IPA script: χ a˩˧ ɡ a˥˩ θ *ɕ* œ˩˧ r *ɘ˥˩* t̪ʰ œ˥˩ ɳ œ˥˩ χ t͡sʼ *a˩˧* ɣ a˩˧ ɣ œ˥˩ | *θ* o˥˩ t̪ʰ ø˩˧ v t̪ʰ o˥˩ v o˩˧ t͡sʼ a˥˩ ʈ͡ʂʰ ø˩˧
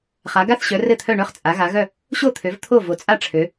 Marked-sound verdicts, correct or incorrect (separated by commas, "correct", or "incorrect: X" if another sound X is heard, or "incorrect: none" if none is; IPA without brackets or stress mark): correct, correct, correct, incorrect: ɕ